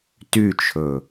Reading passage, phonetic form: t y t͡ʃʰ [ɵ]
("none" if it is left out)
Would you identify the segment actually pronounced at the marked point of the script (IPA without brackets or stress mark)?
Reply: ɵ